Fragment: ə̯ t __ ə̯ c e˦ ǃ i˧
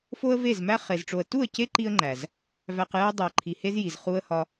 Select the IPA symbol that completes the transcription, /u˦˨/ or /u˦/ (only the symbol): u˦˨